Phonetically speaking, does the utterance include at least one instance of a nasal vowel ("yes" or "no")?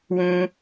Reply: yes